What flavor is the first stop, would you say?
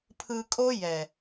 aspirated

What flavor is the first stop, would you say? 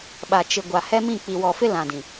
implosive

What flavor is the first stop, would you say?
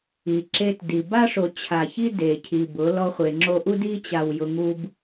click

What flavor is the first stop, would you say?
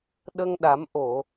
implosive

